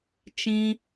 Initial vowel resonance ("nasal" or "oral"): nasal